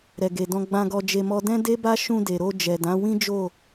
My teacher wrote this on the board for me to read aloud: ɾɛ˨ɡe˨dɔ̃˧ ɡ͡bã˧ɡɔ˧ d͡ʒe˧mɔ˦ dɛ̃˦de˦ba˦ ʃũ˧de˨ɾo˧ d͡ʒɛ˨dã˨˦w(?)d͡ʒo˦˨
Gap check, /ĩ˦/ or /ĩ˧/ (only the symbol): ĩ˦